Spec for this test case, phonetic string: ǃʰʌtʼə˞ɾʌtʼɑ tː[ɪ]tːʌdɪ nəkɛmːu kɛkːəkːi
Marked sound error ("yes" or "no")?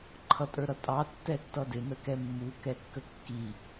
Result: yes